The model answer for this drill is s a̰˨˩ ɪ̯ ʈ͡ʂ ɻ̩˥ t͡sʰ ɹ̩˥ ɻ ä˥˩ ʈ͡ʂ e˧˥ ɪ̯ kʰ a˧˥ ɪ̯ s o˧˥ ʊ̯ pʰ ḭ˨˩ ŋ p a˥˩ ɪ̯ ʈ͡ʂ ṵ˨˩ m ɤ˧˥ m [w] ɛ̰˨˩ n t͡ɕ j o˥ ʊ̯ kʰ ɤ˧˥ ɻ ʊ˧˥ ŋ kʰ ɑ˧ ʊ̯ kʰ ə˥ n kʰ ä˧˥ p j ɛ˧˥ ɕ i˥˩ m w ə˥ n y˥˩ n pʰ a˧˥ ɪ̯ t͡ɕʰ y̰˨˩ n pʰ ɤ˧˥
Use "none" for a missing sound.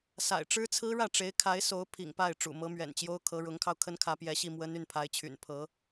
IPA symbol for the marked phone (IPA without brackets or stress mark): ɥ